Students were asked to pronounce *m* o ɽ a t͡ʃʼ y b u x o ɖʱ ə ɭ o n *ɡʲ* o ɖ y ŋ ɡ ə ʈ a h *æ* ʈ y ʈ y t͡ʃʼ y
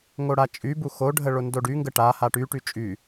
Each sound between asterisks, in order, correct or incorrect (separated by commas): incorrect, incorrect, incorrect